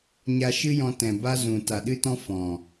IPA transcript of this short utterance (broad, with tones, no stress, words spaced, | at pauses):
ɲa˧ʃɨ˦ jɔ̃˧tɛ̃˨ba˦zũ˨ ta˨ɗɨ˦tɔ̃˦ fɔ̃˨